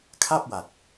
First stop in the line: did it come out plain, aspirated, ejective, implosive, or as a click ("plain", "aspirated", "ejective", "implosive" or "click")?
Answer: aspirated